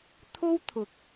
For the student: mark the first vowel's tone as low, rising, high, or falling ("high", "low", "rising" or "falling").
high